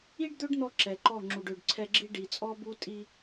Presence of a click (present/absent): present